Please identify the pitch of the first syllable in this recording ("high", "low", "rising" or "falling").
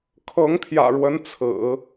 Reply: rising